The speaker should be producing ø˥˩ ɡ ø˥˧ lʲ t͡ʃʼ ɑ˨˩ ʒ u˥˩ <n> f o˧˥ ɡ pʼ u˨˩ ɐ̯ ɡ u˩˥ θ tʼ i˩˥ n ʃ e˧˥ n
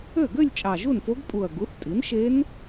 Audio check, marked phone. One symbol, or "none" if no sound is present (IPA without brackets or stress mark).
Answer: n